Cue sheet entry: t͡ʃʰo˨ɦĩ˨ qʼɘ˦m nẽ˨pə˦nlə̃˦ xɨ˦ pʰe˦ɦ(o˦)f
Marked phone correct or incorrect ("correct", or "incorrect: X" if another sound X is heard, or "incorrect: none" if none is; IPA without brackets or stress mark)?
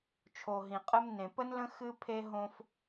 incorrect: õ˦